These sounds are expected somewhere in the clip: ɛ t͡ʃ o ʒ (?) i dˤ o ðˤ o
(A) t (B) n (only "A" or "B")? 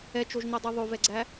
B